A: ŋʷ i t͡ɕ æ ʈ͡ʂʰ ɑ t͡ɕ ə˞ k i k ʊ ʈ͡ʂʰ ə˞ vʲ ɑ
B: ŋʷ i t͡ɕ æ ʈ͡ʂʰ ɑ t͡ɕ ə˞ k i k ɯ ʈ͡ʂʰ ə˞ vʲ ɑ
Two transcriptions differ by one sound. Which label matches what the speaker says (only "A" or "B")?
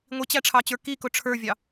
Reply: A